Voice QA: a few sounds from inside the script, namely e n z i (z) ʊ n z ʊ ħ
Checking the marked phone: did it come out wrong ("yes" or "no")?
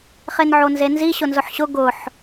yes